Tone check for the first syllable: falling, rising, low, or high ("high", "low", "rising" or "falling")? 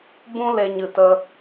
high